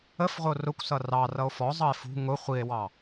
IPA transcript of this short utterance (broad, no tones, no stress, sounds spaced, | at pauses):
ə f ʁʷ ɪ o̯ r ʊ kʷ s ʌ r ɑ r ʌ o̯ f ɔ zˤ ʌ e̯ f ṳ ŋ ʊ χʷ i e̯ w ɑ